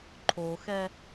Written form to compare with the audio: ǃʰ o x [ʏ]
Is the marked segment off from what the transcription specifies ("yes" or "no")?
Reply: yes